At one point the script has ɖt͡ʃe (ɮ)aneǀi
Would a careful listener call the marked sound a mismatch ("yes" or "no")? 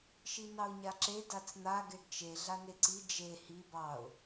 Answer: no